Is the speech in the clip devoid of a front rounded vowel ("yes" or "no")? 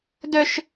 no